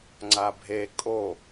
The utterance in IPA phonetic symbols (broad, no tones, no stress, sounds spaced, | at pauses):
ŋ͡ǀ a bʱ e kʼ o